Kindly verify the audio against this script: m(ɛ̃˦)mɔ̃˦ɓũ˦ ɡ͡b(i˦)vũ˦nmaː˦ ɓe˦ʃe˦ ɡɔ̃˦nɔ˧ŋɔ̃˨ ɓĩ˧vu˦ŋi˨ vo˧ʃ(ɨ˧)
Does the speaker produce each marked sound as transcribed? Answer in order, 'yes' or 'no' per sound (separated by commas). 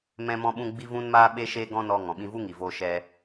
yes, yes, no